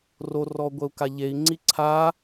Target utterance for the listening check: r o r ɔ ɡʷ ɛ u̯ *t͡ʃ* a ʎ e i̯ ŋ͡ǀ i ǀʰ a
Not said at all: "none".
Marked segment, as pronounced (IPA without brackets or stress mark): k